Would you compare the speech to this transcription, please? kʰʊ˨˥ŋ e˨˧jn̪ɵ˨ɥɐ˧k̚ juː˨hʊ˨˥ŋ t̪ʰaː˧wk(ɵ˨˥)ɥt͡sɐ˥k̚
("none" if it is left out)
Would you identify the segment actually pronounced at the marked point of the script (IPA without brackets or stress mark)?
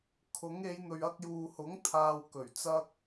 ɵ˨˩